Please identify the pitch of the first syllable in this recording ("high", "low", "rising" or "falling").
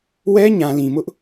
high